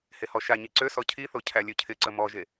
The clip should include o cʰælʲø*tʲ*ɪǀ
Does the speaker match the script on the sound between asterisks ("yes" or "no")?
no